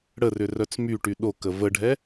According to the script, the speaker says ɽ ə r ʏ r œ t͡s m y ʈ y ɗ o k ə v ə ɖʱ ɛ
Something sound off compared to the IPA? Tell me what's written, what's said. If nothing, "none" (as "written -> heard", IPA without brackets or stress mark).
none